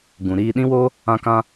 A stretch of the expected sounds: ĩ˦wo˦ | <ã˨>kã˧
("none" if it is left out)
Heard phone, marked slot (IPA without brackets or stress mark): ã˧